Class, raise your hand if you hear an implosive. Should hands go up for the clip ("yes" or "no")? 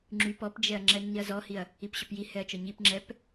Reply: no